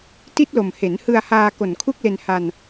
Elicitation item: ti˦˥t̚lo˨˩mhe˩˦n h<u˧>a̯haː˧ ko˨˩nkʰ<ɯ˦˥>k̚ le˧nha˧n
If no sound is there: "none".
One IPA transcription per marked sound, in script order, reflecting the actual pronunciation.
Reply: ɯ˧, u˦˥

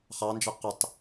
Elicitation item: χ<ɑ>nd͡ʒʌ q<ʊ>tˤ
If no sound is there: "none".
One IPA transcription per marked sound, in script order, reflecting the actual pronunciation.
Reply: ɑ, ʊ

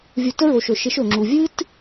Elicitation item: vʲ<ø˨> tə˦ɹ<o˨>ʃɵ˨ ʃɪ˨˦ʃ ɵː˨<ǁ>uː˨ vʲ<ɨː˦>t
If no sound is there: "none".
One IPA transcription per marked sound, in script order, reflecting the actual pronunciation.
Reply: u˨, o˨, ŋ͡ǁ, ɨː˦

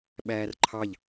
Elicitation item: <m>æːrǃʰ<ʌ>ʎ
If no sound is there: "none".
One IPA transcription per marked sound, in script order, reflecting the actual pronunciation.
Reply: ɓ, ɑ

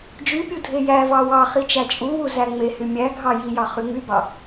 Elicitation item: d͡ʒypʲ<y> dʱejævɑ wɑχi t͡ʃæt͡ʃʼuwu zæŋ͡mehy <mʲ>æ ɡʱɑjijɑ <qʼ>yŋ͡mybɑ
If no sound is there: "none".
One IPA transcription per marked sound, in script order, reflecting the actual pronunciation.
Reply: u, mʲ, χ

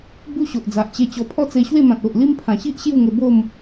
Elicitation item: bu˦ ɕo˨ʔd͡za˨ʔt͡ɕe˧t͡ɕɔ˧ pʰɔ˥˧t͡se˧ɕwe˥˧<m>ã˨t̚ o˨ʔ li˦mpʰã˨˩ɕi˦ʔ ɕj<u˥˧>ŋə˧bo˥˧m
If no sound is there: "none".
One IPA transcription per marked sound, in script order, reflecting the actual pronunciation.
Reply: m, u˥˧

